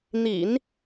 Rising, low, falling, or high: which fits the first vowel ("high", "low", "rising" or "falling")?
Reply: low